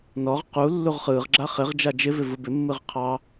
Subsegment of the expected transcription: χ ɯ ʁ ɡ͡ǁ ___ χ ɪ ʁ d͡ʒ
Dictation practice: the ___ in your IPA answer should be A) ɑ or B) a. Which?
B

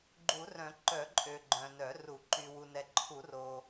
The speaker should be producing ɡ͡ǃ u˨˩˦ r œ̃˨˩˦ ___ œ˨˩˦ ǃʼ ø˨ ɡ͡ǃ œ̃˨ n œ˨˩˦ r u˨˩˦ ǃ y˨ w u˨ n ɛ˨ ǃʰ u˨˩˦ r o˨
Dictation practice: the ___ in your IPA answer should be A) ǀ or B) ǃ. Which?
B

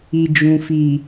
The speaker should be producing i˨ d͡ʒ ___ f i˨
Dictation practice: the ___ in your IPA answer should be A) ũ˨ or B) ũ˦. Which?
A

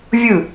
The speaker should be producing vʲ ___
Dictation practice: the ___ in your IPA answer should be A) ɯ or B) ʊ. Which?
A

